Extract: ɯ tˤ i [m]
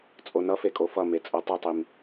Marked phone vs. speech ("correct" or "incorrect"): correct